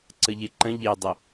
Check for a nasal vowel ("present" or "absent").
present